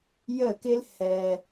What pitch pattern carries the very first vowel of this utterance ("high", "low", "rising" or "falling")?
falling